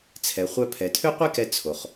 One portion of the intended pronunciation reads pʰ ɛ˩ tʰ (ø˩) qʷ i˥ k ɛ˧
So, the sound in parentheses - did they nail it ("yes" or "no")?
no